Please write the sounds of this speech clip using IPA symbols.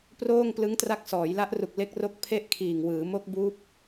p r oː˥˩ ŋ p l ɯ˦˥ ŋ t r a˦˥ k̚ s ɔː˩˦ j l a˦˥ ʔ r u˨˩ k̚ l e˥˩ k̚ r o˥˩ k̚ pʰ e˥˩ ʔ kʰ iː˨˩ ŋ w ɯː˩˦ m o˦˥ k̚ b uː˦˥ p̚

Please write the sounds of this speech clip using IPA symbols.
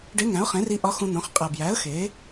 ɖ e˧˥ ŋ æ̃˩˥ ʊ̯ χ ẽ˩˥ r i˧ ʔ ɒ˧˥ x ũ˧ n̪ õ˩˥ χ qʼ æ˨˩ b j æ˩˥ ə̯ x e˩˥

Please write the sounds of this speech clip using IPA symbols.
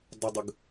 dˤ ə dˤ ə ɡ

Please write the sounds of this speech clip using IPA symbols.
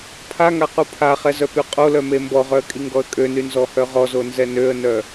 pʰ a ŋ a q u pʰ a χ ɛ z œ p y qʼ o l œ m e m b ɔ ʁ œ ə̯ kʼ i ŋ ɡ ɔ ə̯ kʼ ø n y n z ɔ h œ ʁ ɔ z o n z ɛ n ø ə̯ n œ

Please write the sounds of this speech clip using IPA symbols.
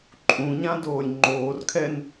ǃʼ ũ ɲ ã d oː lʲ ŋ͡ǃ oː r kʰ ɛ n

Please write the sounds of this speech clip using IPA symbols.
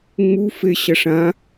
ŋ͡m u f e ɕ ɐ ʂ ã

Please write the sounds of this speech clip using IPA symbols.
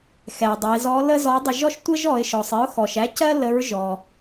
x ɛ˩ dˤ ə˩˧ ɪ̯ z ɔ˧˥ l ə˥ z ɔ˧˥ dˤ ɪ˧ ʒ ɔ˥ ʃ tʷ ə˥ ʒ ɔ˩˧ ɪ̯ ʃ ɔ˩ sˤ ɪ˧˥ ʊ̯ x ɔ˩ ʃ æ˧˥ c ɜ˥ l ə˧˥ ɹ ʒ ɔ˩

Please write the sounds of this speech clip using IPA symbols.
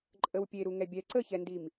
ǃʼ ə w pʲ e ɾ u ŋ ɛ bʲ ɛ ǀ ə ç ɛ n d i m

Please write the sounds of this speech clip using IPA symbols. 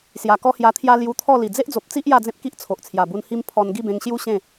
s j a˨˩ k ɔ˦ h j a˧ t̪ʰ j a˦ l j u˧ t̪ʰ ɔ˥˧ l i˨˩ d͡z e˦ ʔ d͡z o˨ p̚ t͡s i˦ ʔ j a˥˧ d͡z ẽ˦ p̚ k i˦ ʔ t͡sʰ o˨ ʔ t͡sʰ j a˨˩ b u˧ n h i˦ m pʰ ɔ˧ n ɡ i˥˧ b ẽ˧ ŋ ɕ j u˦ ɕ ẽ˥˧

